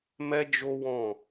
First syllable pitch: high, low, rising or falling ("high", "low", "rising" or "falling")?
high